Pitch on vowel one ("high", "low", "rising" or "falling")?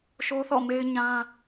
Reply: high